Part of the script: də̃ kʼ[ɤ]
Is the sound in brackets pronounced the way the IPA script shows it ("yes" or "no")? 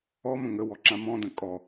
no